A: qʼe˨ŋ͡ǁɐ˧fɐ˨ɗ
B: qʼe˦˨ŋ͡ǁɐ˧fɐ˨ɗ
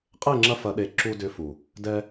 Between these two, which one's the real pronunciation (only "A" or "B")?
B